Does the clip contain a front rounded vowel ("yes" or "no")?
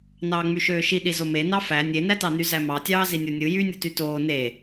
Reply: yes